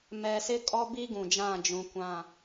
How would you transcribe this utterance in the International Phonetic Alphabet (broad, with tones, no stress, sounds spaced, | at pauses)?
m ɛ˨ s ɪ˦ kʼ ɔ˦ b i˦ ɡ ũ˨ d͡ʒ ã˦˨ d͡ʒ ũ˨ kʷ ã˦˨